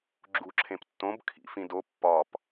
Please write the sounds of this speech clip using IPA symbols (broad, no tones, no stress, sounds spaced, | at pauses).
ɡ͡ǁ u ǁʰ ẽ p tː õ b kʰ ḭ f ĩ d o pː ɒ p